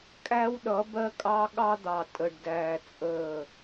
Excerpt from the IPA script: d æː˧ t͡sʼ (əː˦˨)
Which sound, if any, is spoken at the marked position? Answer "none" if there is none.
əː˦˨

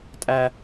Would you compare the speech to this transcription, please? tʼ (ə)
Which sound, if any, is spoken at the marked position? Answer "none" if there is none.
æ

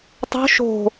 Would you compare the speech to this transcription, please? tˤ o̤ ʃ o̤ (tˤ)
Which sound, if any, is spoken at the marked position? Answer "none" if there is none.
none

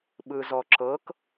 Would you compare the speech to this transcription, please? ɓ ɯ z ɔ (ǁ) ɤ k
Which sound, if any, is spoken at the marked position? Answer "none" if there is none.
ǁ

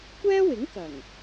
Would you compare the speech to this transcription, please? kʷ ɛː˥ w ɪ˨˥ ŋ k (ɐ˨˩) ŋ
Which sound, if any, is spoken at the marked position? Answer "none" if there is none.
ɐ˨˩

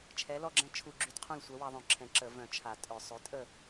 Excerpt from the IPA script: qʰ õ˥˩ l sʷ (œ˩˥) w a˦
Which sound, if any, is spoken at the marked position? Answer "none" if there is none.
œ˩˥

